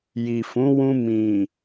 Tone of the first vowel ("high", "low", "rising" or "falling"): low